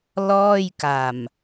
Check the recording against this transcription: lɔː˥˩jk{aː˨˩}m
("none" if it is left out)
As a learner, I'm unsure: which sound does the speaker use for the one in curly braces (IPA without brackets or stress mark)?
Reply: a˨˩